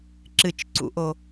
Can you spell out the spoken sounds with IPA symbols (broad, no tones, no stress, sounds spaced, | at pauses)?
ǁ ɨ t͡ʃ ǀ ṵ ʔ o